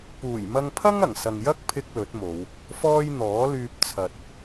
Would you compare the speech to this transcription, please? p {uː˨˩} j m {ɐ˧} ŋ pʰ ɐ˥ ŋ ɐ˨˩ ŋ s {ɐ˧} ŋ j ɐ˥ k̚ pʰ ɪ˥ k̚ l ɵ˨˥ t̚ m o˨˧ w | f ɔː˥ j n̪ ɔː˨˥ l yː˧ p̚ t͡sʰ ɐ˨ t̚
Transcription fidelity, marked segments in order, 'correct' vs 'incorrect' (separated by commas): correct, correct, incorrect